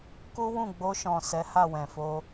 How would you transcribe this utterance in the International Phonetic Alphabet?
k u˦ w ũ˦˨ ɡ͡b o˧ ʃ ɔ̃˨ s ɛ˨˦ h a˦˨ w ɛ̃˨ f o˧

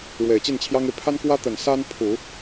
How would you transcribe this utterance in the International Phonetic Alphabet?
ɻ w e˨˩ ɪ̯ t͡ɕ i˥˩ n t͡ɕʰ j ɑ˥ ŋ e˨ ɪ̯ pʰ a˥ n k w ä˥ t̪ ə˨˩ n s a˥ n pʰ u˨˩˦

